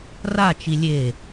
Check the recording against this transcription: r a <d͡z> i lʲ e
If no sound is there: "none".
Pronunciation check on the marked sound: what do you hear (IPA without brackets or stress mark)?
t͡ʃ